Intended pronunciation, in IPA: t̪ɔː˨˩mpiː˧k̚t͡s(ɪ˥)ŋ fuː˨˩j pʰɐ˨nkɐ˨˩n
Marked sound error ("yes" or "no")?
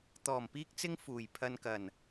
yes